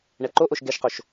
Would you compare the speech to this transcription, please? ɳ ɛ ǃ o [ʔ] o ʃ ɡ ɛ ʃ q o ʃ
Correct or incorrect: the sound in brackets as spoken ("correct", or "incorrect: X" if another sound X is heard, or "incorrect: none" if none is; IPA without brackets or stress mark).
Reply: correct